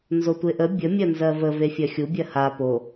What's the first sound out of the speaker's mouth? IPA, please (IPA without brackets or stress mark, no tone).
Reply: n